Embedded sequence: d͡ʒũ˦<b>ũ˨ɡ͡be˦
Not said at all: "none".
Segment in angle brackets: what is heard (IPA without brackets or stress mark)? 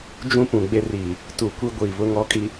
p